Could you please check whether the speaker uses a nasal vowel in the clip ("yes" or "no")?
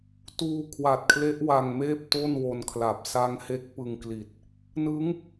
no